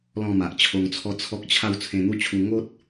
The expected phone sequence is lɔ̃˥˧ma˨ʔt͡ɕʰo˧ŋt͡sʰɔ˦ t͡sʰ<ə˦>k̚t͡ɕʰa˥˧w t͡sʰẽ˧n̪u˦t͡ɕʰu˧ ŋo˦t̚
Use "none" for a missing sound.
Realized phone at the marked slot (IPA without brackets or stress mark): ɔ˦